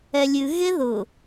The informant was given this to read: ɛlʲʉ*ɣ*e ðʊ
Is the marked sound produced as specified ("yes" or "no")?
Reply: yes